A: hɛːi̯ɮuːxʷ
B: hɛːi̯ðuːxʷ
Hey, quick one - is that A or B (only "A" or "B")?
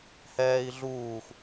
A